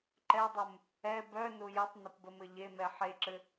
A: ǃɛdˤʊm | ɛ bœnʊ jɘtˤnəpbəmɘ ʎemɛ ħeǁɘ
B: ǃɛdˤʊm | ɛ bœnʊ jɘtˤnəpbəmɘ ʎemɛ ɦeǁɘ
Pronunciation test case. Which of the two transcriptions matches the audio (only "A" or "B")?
A